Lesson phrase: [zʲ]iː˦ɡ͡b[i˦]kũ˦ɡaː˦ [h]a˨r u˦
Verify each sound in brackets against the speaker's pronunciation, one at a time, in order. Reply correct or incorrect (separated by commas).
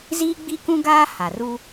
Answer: incorrect, correct, correct